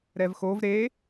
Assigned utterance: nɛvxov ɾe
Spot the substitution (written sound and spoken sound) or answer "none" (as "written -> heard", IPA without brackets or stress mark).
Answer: n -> ɾ